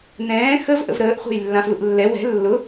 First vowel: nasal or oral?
nasal